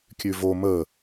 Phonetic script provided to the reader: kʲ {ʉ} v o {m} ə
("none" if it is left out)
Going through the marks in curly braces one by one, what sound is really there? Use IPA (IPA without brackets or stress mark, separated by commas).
ʉ, m